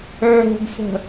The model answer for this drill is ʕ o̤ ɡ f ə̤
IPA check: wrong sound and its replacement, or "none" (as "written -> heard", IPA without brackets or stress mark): none